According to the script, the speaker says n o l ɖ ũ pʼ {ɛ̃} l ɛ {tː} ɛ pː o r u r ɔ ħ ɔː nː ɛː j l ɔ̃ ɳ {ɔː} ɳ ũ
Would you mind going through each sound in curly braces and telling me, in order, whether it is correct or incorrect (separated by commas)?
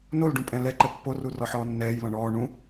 correct, incorrect, correct